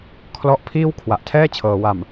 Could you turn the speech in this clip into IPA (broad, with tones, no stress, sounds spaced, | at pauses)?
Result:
kʰ l ɔ˦˥ ʔ pʰ iː˥˩ w kʰ w a˨˩ ʔ tʰ ɛː˥˩ t͡ɕʰ ɤː˩˦ w a˨˩ m